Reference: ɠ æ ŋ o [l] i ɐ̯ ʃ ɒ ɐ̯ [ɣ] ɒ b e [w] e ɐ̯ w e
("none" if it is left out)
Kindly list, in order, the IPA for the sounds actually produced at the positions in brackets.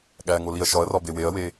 l, r, w

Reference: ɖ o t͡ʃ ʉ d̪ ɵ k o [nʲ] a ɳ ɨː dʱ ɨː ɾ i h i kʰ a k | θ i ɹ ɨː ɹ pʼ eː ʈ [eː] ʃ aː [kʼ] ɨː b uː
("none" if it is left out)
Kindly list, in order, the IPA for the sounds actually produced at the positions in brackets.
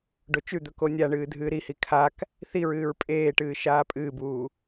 nʲ, ɨː, pʼ

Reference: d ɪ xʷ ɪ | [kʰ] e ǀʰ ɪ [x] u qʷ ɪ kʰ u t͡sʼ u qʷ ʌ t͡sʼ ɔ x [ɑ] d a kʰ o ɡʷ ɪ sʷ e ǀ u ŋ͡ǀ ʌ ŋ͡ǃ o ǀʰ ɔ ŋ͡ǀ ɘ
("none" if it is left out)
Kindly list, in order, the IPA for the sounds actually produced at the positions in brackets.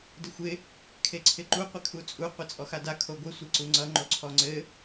kʰ, ǃ, a

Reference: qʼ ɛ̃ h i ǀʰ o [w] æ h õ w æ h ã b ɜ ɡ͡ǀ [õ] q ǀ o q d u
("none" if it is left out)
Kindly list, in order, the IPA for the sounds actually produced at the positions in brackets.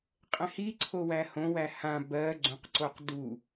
w, õ

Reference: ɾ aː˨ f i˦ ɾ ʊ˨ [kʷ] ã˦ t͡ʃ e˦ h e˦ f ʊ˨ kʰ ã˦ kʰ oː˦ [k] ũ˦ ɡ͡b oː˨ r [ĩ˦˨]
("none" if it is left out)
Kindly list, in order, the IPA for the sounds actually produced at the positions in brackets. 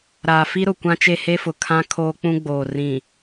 kʷ, k͡p, ĩ˨

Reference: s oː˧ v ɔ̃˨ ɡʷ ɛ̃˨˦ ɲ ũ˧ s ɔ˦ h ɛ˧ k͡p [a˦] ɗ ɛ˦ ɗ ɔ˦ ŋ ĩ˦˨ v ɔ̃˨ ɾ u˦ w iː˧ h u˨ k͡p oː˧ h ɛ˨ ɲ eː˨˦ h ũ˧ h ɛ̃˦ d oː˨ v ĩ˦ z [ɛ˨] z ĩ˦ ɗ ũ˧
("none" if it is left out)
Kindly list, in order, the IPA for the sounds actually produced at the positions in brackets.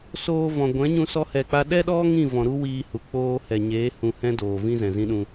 a˦, ɛ̃˨

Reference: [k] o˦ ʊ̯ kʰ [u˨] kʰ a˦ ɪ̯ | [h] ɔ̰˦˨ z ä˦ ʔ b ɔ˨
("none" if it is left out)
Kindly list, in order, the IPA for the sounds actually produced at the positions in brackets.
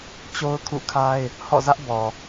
t͡ɕ, ṵ˦˨, h

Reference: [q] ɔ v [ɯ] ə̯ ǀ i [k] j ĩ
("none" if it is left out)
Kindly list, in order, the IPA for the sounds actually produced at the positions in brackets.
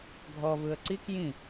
ɡʱ, ɯ, k

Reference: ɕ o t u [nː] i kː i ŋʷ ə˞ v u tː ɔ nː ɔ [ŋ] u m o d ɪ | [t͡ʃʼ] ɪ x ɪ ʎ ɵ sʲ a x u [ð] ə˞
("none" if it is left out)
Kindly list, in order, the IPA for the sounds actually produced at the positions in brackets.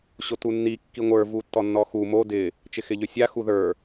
nː, x, t͡ʃ, ð

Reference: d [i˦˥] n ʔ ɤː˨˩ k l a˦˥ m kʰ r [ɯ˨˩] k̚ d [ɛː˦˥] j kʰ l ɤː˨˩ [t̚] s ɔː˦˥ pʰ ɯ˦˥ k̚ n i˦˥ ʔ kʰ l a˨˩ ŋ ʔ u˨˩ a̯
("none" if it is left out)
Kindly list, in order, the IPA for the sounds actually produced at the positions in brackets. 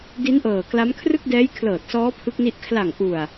i˦˥, ɯ˥˩, ɛː˦˥, t̚

